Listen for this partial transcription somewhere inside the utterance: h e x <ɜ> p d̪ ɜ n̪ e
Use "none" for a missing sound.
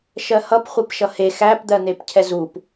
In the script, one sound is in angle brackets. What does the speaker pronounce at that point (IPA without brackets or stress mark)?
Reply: æ